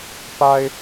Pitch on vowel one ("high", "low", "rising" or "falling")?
high